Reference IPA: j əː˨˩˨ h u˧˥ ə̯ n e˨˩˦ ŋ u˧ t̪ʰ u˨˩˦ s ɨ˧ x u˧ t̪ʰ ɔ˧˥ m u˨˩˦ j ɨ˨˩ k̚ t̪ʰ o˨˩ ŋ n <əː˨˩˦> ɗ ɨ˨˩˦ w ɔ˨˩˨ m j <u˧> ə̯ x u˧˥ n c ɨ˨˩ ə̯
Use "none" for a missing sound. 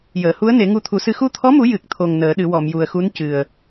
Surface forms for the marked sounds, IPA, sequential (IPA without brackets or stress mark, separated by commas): əː˨˩˦, u˨˩